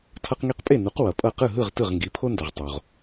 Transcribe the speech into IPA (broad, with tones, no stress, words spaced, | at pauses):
tʰʌ˧qŋi˧qpʼe˥˩nu˩˥q wʌ˩pʼʌ˥˩ qɯ˥˩ɦɯ˥˩ʁ tɯ˥˩ʁŋɡi˩˥pʰo˥ndʌ˩ʁ tˤo˩ʁ